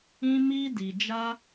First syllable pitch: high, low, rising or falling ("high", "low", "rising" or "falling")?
high